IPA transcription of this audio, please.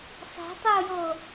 sˤe̤tˤɘo̯jo

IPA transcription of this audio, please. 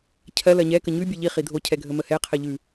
cʰɜ lɜɲɛ kəɲʉ bʲɛʎi χidʱo cʰɛɡʱəməhɛ qʰɜʎʉ

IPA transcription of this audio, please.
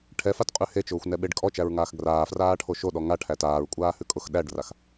ʈʰɛfatqʼʉ het͡ʃʊːxʷnɛɓeɖ kʼɔt͡ʃæɹŋaːx ɡraːfraːʈʰo ʃoɗɔ ŋaʈʰæ taːɹkʷʼaːhʉ kʼʊx ɗæɖrax

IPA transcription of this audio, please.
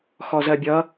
xɔzɜbʲʌ

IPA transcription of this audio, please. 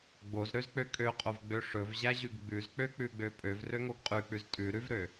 ɡ͡bozɾøzk͡pø kʼøqʼovɡ͡bø ʂɵvʑæʑʉɡ ɡ͡bʉzk͡pøk͡pʉɡ͡bø pʼøvrøŋoɡ qʼʉk͡pʉz tʼʉɾʉvɾø

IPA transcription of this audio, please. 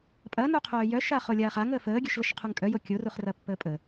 pʼɐnu qʰœːjœʃa χolʲaːχaŋəː fəːɡʲœʃləʃ qʰuŋkʼœjo kʲoruχ rɐpːəːpʼə

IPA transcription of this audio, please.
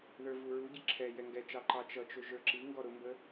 ðə˞vuɹuɟɪ ǁʰɛ jɛŋɡɛt͡ʃɑ ǃɑt͡ʃʌt͡ʃʊ ʒə˞ǁiŋɡɔ ɾʊmbə

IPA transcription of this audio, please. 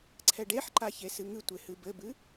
ǀʰɛɖeħǃa çesɨŋɨtʷe hɨbɘbɨ

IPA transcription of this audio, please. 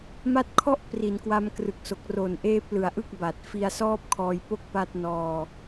ma˦˥t̚kʰɔ˥˩ʔ pri˩˦nkwa˧mkrɯ˨˩k̚so˨˩k̚ ro˨˩n ʔeː˦˥p̚lɯ˨˩a̯ʔɯ˥˩k̚ba˨˩t̚ fi˧a̯sɔː˥˩p̚kʰɔː˧j po˥˩k̚pa˦˥t̚nɔː˧

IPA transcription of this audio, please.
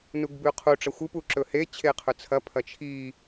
nuɡbʉqʰu ʈ͡ʂɐxʷɨ puǁɵhe t͡ɕʰeqʰɵt͡sʰɐ pʰɐt͡ʃʰi

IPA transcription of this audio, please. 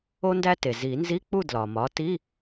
o˧ndæ˧te˩ zi˨˩˦nzi˧˥˧k͡pu˥˨ dlɒ˩mɒ˩˥ ti˧˥˧

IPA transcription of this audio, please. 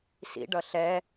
sḭ ɖʌɬɛ

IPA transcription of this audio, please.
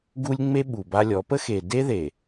ɡu˦lʲŋ͡me˦ ɓu˨ba˦lʲɔ˨˦ pə˦xe˨de˦ðe˨

